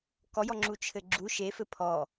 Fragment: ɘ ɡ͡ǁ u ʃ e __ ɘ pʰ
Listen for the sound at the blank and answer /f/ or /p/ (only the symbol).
f